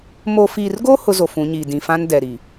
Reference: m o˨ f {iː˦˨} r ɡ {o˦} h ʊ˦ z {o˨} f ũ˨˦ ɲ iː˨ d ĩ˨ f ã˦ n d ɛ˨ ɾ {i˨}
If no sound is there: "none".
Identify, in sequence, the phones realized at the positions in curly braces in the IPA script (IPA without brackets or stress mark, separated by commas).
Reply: iː˨, o˦, o˨, i˨